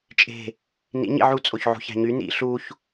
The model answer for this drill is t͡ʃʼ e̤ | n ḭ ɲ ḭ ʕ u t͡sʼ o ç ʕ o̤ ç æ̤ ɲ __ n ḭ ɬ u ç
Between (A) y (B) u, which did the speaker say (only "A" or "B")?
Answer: A